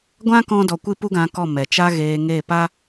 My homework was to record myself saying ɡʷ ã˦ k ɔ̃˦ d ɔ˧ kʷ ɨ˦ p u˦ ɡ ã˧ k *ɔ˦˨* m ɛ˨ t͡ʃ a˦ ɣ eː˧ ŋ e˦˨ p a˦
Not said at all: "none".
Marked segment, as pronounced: ɔ˦˨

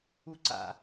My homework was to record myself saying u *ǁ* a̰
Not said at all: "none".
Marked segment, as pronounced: ǀ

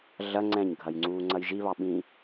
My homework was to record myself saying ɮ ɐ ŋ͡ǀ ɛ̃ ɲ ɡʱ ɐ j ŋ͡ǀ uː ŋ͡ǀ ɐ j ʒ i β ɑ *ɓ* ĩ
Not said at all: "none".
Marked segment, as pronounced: ɓ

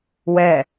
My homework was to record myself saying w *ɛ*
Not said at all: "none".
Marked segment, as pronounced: ɛ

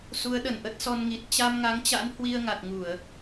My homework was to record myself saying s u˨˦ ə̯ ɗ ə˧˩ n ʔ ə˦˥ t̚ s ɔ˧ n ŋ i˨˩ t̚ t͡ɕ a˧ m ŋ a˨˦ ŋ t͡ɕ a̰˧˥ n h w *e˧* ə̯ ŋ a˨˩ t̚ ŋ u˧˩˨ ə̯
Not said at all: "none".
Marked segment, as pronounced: i˧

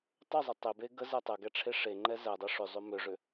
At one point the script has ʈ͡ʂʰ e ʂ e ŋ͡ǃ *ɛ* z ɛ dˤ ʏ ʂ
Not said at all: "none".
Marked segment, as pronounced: ɛ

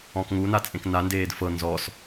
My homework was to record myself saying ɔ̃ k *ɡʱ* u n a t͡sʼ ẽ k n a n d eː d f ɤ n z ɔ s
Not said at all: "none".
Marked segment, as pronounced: ŋ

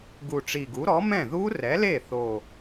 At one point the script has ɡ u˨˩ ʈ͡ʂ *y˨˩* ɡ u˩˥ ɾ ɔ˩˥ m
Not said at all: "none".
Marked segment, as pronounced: i˨˩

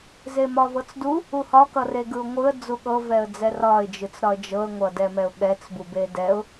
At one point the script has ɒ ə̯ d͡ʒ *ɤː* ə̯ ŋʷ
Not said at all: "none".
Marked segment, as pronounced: ɤ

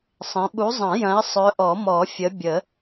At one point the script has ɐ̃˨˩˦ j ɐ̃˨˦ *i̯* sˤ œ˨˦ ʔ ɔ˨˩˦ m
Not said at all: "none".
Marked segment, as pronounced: i̯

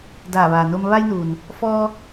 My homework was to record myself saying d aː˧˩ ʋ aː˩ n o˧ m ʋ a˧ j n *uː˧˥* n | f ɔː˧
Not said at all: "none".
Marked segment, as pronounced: uː˩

